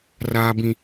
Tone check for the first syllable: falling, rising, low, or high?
high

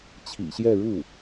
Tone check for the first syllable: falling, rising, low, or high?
low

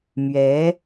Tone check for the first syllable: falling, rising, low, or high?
rising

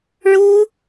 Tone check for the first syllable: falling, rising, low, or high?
high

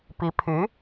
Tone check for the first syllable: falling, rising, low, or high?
rising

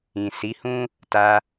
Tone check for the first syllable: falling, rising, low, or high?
low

